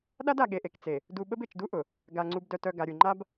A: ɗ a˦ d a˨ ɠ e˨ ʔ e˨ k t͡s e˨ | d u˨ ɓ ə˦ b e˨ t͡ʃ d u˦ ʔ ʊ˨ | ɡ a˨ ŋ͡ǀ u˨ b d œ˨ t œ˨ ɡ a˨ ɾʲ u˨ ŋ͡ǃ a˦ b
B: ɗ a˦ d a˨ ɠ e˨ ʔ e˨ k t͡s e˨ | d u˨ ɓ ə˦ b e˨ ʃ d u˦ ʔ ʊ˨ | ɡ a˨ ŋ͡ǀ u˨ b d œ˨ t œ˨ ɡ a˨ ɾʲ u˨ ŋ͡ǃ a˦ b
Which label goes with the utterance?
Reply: A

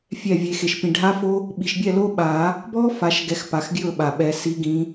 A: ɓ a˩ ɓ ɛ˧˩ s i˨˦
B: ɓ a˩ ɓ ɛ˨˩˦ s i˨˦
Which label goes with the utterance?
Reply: B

